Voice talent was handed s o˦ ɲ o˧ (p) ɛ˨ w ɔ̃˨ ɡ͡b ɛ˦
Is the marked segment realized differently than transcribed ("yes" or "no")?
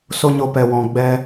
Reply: no